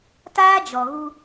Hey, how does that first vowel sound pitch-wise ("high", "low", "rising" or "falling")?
high